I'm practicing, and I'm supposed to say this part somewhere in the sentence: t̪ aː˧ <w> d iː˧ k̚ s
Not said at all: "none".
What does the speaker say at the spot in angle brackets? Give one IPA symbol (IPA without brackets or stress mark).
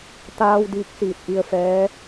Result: w